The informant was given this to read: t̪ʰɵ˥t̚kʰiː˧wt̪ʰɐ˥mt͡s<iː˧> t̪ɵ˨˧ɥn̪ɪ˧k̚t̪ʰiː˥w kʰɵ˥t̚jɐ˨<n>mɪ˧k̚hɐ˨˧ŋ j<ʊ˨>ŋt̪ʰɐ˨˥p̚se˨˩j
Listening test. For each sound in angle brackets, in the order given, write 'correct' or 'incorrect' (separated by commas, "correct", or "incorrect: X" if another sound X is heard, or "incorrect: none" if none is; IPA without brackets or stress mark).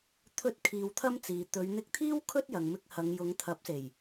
incorrect: iː˨, incorrect: ŋ, incorrect: ʊ˨˧